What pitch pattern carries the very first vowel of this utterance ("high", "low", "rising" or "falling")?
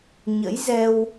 rising